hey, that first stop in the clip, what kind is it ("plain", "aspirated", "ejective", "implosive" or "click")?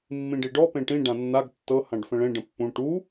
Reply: plain